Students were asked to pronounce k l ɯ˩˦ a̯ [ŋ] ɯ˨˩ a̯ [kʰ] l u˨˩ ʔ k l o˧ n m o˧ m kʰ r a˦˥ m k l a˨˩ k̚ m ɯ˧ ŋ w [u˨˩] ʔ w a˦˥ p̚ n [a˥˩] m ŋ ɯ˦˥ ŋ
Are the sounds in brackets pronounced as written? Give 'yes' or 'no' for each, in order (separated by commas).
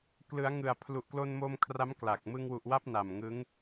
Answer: yes, no, yes, no